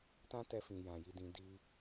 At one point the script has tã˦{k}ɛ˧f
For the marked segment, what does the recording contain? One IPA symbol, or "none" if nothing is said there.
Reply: t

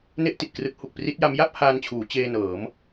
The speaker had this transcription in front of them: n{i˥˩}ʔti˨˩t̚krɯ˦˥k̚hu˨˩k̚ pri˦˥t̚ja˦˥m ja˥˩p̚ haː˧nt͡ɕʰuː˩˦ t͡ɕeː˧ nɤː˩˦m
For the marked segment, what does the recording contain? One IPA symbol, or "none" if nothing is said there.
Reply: e˥˩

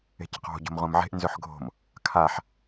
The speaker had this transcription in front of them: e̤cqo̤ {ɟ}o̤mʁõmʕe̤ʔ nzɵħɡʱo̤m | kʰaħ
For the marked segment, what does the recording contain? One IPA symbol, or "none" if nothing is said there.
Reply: ɟ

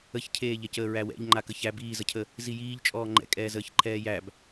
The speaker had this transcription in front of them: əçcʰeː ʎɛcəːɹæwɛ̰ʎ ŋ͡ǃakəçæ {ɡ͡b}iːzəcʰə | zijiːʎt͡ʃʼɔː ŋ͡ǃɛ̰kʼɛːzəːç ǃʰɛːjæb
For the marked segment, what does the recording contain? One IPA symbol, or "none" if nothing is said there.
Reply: b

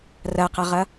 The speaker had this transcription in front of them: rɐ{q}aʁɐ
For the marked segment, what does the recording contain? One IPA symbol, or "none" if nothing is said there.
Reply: q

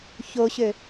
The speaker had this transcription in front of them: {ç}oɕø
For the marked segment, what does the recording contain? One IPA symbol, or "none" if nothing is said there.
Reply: ç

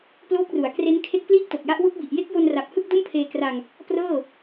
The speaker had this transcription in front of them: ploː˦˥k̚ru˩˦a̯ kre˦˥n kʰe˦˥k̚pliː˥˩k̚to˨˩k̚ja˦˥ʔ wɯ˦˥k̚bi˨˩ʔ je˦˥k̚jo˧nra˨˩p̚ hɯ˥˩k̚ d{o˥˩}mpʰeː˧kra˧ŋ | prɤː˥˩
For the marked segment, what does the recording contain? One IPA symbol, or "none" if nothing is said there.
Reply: o˥˩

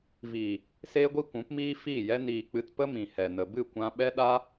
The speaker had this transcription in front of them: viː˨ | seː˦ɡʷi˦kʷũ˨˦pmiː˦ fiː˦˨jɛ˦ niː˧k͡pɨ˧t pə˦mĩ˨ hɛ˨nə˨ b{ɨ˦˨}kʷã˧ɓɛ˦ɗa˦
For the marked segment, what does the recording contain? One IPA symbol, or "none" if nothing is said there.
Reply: ɨ˦˨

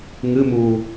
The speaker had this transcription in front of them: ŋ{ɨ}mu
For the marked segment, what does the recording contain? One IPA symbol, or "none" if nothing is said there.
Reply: ɨ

